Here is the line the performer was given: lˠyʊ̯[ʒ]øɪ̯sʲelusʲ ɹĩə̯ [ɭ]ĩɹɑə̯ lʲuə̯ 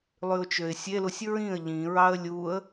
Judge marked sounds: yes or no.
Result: no, no

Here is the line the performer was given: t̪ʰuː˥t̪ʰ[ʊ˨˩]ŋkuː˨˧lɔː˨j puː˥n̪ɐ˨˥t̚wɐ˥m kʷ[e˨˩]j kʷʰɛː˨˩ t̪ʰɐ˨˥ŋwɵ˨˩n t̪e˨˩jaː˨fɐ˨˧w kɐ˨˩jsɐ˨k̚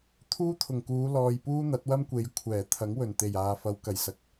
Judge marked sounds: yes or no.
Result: yes, no

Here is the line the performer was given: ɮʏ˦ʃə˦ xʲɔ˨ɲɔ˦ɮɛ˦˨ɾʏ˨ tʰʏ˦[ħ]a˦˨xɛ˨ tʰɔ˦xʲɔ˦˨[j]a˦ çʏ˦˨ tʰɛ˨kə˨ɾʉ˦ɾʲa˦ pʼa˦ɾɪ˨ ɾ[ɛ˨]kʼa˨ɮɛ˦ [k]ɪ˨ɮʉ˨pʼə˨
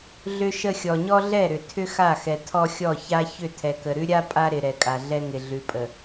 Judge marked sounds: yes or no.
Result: no, no, yes, no

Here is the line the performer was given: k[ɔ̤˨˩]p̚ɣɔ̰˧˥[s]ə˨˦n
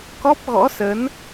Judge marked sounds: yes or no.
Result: no, yes

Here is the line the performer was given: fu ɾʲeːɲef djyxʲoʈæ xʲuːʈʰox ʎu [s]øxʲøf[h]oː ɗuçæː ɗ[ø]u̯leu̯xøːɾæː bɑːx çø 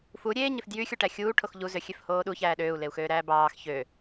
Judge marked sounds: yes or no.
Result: no, yes, no

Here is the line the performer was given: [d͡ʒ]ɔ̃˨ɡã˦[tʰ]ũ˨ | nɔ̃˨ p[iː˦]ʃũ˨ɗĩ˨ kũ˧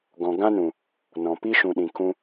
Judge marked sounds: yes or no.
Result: no, no, no

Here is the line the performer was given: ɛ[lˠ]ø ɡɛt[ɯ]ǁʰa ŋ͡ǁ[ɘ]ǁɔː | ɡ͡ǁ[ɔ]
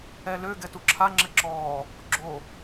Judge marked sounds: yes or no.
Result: no, no, yes, no

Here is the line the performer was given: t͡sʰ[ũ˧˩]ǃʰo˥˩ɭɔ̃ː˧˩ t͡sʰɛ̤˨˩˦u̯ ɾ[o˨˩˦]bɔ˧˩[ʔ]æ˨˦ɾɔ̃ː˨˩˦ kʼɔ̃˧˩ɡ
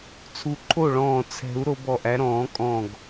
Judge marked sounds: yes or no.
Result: no, no, yes

